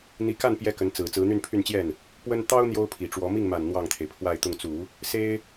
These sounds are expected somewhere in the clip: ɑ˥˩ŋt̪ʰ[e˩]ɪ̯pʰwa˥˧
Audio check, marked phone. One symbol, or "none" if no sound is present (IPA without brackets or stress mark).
e˩